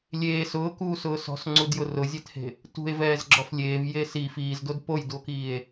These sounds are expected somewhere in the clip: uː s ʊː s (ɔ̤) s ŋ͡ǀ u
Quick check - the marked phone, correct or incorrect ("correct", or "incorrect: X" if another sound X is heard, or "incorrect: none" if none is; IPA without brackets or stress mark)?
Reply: correct